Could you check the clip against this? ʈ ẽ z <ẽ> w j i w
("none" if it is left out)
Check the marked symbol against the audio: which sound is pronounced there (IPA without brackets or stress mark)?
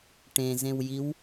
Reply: ẽ